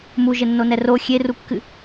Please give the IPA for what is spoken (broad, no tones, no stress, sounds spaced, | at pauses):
m u ʒ ɘ nː o n ɛ r o xʲ e r u kː ɨ